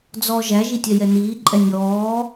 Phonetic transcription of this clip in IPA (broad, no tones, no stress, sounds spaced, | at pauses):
d͡z ɔ ʒ æ ʒ i tʲ ɛ j ɛ n iː ǃʼ ɛ nʲ ɔː